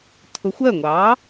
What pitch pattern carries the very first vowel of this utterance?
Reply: rising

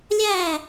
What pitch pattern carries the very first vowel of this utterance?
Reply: falling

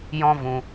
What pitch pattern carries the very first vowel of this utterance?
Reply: high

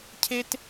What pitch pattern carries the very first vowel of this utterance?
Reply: high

